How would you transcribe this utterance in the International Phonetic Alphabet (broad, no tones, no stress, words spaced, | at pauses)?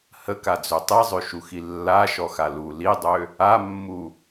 həkad͡zø tˤizˤøʃuxi lːaʃɔxa lu lidˤø | amːu